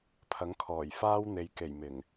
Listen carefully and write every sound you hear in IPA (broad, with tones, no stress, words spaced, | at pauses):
pʰɐ˨˥ŋkʰɔː˨˩j faː˥wn̪e˨˧jke˨˩j mɪ˨˩ŋ